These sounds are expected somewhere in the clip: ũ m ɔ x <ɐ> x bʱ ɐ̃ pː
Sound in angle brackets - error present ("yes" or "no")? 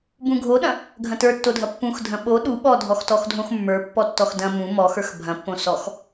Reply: yes